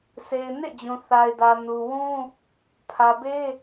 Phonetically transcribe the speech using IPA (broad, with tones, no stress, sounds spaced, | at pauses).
sʰ e˨ ɪ̯ n ḛ˦˨ d͡ʑ ũ˨ θ a˨ ɪ̯ d ä˨ n u˨ w ũ˦ | pʰ ä˨ b e˦